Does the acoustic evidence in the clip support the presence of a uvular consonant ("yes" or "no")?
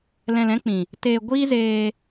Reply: no